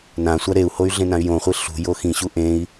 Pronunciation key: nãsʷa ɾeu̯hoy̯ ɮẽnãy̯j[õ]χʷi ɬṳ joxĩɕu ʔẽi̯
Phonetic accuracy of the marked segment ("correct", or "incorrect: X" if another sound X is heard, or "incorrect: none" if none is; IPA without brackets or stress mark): correct